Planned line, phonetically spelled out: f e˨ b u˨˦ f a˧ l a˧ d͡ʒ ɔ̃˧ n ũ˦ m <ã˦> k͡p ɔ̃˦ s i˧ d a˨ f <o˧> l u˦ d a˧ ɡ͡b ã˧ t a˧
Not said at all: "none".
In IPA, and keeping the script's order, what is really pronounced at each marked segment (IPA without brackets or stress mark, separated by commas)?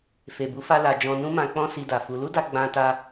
ã˧, u˧